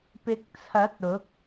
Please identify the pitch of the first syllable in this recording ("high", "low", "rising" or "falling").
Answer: rising